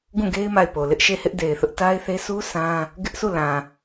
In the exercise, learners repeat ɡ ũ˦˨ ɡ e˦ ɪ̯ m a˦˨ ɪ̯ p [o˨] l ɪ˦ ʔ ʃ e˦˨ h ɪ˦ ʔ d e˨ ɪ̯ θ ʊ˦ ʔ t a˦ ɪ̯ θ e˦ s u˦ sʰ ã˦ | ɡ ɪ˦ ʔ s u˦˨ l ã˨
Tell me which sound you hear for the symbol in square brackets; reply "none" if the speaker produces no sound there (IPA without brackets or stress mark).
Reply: o˨